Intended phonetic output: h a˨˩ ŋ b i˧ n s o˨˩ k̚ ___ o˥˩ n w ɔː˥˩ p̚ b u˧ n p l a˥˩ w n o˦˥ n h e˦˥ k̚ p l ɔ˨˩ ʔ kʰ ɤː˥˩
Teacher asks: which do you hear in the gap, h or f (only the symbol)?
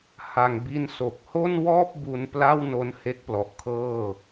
h